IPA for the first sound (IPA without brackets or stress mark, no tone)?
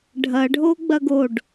ɖʱ